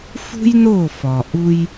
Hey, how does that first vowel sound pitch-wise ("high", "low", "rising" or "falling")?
high